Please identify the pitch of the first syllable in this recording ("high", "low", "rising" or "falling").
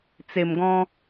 low